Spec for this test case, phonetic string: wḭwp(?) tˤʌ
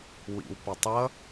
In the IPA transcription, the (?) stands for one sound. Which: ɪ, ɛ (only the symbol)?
ɪ